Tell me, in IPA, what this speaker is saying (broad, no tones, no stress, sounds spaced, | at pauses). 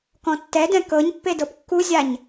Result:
k ɔ̃ tː ɛ d ɛ̃ k ɤ ɲ pː e d ɤ p kː u zʲ a ɲ